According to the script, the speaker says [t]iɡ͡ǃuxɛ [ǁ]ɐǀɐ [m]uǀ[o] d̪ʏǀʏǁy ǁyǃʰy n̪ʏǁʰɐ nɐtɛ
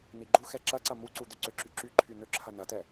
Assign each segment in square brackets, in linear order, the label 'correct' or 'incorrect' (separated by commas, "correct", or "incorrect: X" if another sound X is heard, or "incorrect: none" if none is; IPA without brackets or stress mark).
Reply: incorrect: n̪, correct, correct, incorrect: u